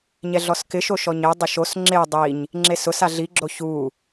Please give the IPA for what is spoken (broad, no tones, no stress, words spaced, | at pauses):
ɲɛɮɔskɪʃo ʃɔɲedˤʊ ʃos ŋ͡ǁe dˤiɲ | ŋ͡ǁesʊsa ɮiɡ͡ǁo çu